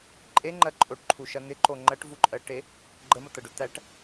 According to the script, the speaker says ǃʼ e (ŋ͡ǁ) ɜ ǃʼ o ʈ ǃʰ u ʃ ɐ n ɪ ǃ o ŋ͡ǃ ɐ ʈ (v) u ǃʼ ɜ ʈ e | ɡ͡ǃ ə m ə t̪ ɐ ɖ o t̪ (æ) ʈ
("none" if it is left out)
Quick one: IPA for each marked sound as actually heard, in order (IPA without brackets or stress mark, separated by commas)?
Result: ŋ͡ǃ, v, æ